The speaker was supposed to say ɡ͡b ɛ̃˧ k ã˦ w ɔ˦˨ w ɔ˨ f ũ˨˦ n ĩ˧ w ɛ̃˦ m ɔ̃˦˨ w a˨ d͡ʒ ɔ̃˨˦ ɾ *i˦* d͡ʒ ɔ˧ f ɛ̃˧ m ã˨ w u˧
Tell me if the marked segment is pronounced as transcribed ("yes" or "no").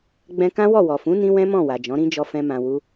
no